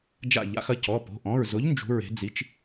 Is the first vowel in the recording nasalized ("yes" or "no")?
no